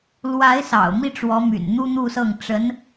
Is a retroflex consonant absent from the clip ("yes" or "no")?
no